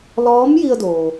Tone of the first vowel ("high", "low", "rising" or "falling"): rising